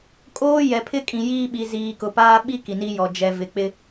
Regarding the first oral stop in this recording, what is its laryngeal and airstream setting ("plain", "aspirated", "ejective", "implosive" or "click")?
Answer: ejective